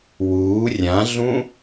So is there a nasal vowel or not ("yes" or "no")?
yes